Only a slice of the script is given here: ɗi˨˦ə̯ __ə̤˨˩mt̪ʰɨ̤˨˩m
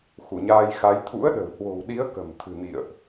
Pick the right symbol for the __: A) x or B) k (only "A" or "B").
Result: B